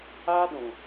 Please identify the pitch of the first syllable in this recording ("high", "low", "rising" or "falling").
high